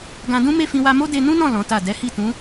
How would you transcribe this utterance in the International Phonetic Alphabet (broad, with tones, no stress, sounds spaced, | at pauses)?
ɡ ã˧ d ũ˦ m e˦˨ f ĩ˧ w a˧ m o˦ d e˧ n ũ˦ n ɔ̃˦˨ l ɔ̃˨˦ t a˦˨ d ɛ˨˦ h i˦˨ t ũ˨˦